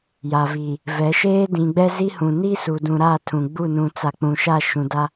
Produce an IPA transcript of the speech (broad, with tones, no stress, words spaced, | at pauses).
ja˨vi˨ | vɛ˨˦ʃeː˦ dĩ˨ɡ͡bɛ˦ zi˦hũ˨ ni˦su˨dũ˨ ɾa˦˨tʰũ˨ɡ͡bu˦˨ nũ˨t͡sa˨ k͡pũ˨ʃa˦˨ ʃũ˨da˦